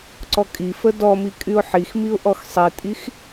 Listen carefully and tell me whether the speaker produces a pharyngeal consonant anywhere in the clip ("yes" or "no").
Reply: yes